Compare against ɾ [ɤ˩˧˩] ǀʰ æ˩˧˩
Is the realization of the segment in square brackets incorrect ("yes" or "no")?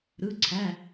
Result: yes